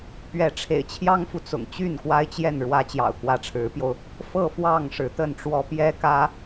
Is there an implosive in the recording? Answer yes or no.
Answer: no